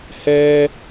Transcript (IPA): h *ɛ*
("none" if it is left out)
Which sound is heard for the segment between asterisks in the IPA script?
ɛ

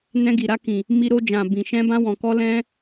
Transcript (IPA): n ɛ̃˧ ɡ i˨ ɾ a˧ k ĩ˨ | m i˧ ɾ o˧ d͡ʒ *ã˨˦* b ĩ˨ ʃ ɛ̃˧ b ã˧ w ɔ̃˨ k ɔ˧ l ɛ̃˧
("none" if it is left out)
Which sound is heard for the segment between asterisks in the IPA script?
ã˨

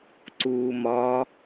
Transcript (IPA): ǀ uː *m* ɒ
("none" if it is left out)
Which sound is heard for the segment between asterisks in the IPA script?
m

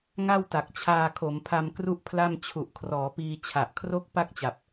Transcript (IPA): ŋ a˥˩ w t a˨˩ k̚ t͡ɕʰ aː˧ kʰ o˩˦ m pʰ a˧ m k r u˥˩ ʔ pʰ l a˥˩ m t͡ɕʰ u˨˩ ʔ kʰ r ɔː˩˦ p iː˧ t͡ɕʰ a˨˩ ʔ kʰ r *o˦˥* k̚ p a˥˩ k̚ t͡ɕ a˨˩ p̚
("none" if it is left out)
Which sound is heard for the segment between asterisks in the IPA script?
o˥˩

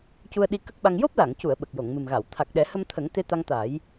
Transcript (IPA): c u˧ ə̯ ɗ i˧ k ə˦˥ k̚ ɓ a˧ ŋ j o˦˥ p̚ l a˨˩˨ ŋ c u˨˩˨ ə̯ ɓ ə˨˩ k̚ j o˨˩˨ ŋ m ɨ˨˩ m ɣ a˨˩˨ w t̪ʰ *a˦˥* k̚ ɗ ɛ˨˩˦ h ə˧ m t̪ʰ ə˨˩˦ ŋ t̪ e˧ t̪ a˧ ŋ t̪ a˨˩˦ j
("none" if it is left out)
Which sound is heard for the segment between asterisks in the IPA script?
a˨˩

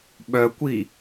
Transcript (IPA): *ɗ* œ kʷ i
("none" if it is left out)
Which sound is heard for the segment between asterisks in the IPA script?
ɓ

